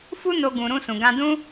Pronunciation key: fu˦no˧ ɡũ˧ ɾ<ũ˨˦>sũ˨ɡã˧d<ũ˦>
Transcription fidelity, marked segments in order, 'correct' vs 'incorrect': incorrect, correct

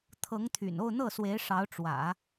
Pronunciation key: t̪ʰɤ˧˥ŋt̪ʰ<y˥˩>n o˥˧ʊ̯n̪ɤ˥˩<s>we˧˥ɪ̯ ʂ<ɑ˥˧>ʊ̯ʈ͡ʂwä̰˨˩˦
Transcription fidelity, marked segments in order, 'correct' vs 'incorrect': incorrect, correct, incorrect

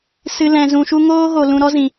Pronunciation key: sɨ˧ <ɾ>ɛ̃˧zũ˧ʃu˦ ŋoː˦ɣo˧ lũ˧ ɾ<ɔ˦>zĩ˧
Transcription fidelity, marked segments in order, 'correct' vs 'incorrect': incorrect, correct

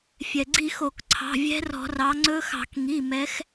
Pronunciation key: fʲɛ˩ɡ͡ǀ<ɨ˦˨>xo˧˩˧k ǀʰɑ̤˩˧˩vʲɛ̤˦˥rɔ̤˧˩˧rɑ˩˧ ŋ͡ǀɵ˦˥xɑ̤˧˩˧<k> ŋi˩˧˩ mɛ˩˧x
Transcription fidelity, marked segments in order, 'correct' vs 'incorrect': incorrect, correct

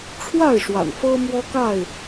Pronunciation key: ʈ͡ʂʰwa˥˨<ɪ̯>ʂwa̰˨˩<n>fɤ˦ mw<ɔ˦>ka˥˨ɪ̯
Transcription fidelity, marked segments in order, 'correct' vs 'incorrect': correct, correct, correct

